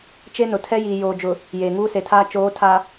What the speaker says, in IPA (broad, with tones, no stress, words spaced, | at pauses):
t͡ʃe˦nʊ˨tʰɛ˦ jiː˨joː˨d͡ʒʊ˨ | jeː˨ŋuː˦se˨tʰaː˦ t͡ʃoː˨˦tʰa˨